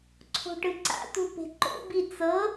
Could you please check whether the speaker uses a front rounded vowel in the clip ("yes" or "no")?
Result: no